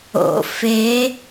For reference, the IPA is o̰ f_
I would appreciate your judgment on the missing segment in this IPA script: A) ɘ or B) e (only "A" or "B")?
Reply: B